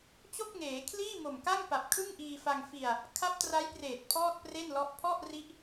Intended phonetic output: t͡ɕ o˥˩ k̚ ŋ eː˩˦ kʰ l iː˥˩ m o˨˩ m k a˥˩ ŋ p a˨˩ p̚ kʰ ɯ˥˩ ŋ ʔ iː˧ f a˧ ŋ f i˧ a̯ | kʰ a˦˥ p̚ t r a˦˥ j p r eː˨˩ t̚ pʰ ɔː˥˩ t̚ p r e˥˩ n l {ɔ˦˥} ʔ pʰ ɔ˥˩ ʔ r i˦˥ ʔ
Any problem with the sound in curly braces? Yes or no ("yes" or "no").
no